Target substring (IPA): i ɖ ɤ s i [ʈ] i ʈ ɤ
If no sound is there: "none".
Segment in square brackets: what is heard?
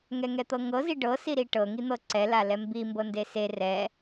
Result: ɾ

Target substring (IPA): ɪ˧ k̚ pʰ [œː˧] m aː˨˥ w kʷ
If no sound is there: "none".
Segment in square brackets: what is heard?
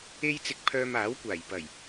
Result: œː˧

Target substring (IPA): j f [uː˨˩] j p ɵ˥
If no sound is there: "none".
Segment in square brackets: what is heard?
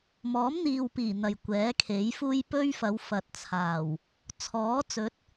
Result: uː˥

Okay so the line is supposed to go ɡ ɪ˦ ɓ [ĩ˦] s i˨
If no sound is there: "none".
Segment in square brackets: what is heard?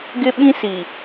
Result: ĩ˦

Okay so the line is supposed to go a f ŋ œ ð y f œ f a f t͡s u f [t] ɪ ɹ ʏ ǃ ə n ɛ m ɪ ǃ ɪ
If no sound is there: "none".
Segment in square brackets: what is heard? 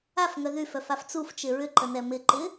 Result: t͡ʃ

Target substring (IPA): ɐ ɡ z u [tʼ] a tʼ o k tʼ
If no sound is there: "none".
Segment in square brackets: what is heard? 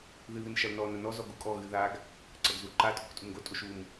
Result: ǃ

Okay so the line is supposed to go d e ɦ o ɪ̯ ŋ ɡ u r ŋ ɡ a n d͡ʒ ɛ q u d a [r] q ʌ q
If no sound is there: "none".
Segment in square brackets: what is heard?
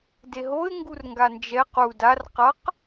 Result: r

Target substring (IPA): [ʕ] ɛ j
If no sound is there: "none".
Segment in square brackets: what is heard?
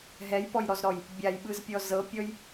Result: ɦ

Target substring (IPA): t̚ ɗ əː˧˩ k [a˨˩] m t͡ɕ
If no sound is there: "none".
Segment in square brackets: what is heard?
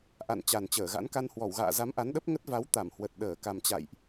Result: a˨˩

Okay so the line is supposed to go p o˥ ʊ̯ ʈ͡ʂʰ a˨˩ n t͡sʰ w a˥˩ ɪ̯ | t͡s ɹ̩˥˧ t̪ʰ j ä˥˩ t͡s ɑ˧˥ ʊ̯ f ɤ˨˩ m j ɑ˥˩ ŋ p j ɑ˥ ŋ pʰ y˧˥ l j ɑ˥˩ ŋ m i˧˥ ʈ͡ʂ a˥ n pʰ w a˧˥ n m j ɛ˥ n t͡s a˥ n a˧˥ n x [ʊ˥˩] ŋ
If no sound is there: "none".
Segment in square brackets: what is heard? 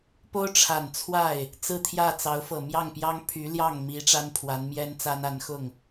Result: ʊ˥˩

